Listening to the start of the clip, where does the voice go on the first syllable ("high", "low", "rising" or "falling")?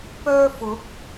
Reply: high